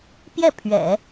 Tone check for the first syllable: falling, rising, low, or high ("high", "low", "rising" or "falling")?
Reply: falling